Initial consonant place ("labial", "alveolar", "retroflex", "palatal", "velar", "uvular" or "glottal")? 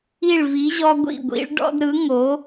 retroflex